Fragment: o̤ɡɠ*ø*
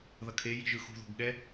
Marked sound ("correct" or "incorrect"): incorrect